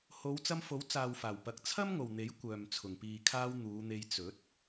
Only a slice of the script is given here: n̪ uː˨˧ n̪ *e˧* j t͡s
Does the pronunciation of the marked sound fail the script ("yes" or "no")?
no